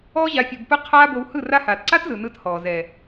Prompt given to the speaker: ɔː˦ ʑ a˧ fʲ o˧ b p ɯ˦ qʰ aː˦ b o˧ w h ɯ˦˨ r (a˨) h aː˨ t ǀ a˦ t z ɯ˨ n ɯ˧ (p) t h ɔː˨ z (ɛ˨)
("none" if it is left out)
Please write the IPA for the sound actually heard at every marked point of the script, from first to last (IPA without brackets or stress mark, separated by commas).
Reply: a˧, none, ɛ˨